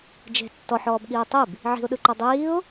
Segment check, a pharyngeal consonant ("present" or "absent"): present